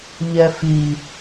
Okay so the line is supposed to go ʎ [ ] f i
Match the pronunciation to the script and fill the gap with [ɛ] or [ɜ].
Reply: ɛ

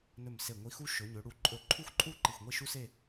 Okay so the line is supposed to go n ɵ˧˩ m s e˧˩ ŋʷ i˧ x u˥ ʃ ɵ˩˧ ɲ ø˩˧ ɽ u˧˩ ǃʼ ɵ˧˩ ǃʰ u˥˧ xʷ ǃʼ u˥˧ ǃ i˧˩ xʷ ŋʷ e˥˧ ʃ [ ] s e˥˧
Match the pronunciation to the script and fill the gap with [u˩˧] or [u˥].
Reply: u˥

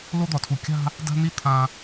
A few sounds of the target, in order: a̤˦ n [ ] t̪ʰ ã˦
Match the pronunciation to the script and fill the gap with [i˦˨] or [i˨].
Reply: i˦˨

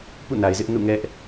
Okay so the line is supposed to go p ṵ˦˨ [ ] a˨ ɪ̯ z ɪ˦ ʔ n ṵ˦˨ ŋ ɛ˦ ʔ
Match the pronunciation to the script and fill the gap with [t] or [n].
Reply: n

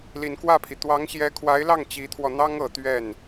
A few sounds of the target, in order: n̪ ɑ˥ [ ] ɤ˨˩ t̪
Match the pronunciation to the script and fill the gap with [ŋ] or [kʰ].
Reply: ŋ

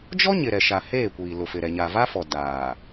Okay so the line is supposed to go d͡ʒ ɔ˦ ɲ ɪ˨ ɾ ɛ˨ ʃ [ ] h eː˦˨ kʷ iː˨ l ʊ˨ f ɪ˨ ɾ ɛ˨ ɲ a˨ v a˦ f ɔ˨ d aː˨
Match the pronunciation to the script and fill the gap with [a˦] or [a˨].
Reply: a˨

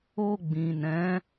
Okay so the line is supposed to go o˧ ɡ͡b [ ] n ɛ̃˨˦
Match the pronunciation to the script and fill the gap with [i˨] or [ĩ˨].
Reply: ĩ˨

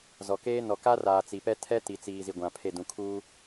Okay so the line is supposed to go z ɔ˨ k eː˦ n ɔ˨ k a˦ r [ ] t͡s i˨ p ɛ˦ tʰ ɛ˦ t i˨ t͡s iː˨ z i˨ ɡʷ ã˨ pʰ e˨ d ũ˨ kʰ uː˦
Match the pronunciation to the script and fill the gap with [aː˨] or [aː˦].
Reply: aː˨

